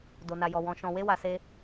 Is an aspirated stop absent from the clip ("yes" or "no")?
yes